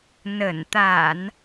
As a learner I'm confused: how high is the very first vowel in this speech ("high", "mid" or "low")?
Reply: mid